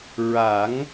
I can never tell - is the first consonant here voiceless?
no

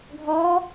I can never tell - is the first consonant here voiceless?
no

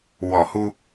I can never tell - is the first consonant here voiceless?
no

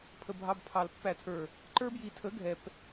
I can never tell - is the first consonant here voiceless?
yes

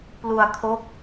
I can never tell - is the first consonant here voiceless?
yes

